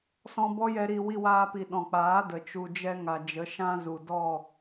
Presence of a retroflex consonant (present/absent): absent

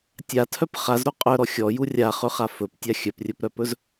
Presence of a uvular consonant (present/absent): present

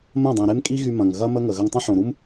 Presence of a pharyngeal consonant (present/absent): present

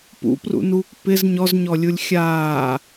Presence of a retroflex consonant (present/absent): absent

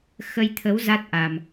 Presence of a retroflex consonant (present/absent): absent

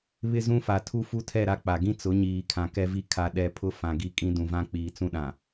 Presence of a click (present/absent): absent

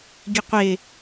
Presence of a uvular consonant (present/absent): present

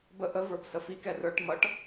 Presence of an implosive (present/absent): absent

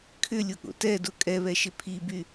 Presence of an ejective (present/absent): present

